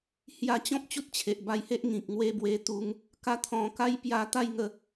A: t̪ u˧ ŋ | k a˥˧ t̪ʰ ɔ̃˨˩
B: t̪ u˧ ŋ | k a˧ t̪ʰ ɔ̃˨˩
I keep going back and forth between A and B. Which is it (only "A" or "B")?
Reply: B